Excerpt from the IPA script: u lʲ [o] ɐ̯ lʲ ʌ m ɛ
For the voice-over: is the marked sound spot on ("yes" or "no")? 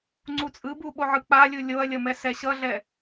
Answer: yes